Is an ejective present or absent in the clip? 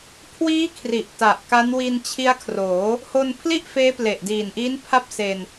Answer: absent